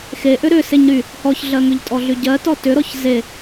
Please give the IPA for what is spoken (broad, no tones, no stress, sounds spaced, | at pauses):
x e ʔ ʏ ɾ ʏ s e ɲ ɾ y | h ɔ ç ɮ ɜ ŋ ʏ ʎ tʼ ɔ ɮ y ɟ ɜ t ɔ t ʏ ɾ ɔ ç z e